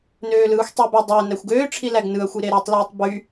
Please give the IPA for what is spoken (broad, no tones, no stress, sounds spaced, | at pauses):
n øː l ɯː xʷ tˤ y b æ dˤ æ n æ xʷ ɡ øː ʈ͡ʂʰ i l æ ɡ n ɯ ɐ̯ xʷ i ɾ e ɾ y tˤ l yː tˤ b y